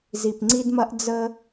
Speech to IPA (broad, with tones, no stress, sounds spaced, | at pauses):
z i˨ p ŋ͡ǀ i˦ d m ɐ˦ ʔ d͡z ə˦